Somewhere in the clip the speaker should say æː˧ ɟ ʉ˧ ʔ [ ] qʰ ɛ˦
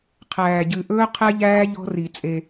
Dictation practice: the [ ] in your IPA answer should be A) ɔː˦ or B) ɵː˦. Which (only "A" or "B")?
B